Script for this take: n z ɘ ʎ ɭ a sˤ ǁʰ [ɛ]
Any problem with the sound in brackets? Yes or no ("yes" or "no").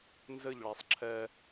no